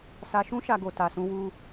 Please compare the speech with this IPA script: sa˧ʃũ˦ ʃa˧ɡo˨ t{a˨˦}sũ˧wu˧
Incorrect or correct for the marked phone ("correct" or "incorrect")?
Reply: incorrect